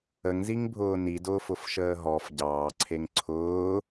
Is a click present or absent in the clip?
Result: present